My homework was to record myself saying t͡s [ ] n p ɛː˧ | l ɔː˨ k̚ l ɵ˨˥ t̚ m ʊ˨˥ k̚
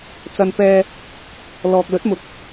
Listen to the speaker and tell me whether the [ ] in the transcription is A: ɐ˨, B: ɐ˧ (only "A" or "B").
B